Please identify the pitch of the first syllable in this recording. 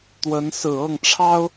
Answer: rising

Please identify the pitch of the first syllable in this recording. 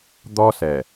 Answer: high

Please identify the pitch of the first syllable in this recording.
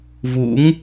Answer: rising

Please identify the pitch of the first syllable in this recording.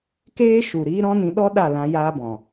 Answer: high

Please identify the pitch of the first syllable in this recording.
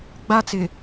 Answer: high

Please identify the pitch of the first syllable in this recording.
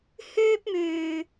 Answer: high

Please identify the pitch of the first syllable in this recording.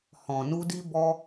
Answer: low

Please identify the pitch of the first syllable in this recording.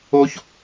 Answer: high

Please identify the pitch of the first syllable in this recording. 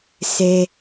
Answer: high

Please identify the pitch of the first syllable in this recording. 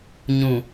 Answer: low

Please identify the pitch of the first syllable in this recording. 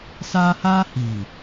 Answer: high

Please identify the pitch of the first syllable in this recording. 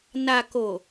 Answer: low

